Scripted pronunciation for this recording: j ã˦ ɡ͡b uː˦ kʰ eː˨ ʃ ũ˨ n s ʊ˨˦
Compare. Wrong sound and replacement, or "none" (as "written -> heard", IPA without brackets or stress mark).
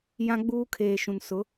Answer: none